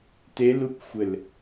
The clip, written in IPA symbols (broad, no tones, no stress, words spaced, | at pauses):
telukʷxʷɘl